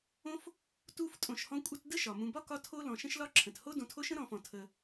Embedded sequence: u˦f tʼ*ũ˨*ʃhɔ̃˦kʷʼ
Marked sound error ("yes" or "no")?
yes